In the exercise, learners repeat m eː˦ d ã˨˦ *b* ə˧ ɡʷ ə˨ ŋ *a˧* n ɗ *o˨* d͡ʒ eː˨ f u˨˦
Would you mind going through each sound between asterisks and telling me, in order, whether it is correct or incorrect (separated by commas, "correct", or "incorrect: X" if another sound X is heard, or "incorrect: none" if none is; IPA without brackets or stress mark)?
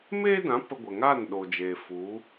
incorrect: p, incorrect: a˦˨, correct